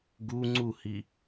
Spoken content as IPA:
ɡ u ŋ͡ǀ u h i

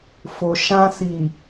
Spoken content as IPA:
f o˨ ʃ ã˧ s i˨

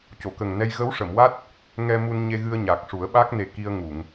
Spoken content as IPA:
c o˨˩˨ k ə˨˩ ŋ n ɛ˧ j ɣ ə˧˥ w ʂ ə˨˩˨ m w a˦˥ t̚ | ŋ ɛ˧ m u˧ n ɲ e˧ ɣ ɨ˧ ə̯ ɲ a˨˩ k̚ ʂ u˨˩˦ ə̯ ɓ a˦˥ k̚ n e˨˩ k i˧ ə̯ ŋ u˨˩˨ ŋ

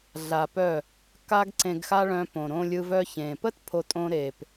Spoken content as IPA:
ɮ a˧ p œ˦˨ | k a˦ ɡ ǀ ẽ˧ ɡ x a˦ ɭ œ̃˧ p õ˨ ɾ õ˧ lʲ ɯ˧ v œ˧ ç ẽ˨ p ə˦ t pʰ o˧ tʼ õ˧ ɾ e˨ p

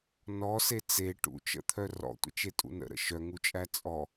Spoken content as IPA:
n ɔ s e t͡s e ʈ ṵ t͡ʃ ə̰ t̪ʰ œ r ɔ̰ tʷ ə̰ t͡ʃ e tʼ ṵ n ə̰ ɾ ə̰ ʃ œ ŋ u t͡ʃʼ æ t͡sʼ ɔ

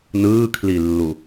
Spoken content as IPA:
n ɯː kʰ l i lː u

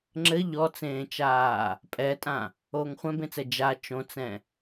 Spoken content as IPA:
ŋ͡ǁ ɘ ʎ ɔ t͡s ẽː t͡ʃ aː | pʼ ɛ tʼ ã | oː ŋ χʷ ɛ̃ b ẽ t͡s ɛ d͡ʒ a t͡ʃ õ t͡s ɛ̃

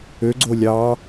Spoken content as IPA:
ø ɡ͡ǀ o lʲ ɑ

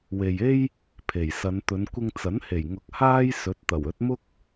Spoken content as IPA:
w e˨ j e˥ j | pʰ e˨˩ j s ɐ˨˧ n t̪ ɵ˨˧ n kʷ ɪ˧ ŋ t͡s ɐ˨˥ n h e˨˩ j ŋ ʊ˨ k̚ h aː˥ j s ɵ˨˥ t̚ t̪ ɐ˨˩ w ɵ˨˥ t̚ m ʊ˥ k̚

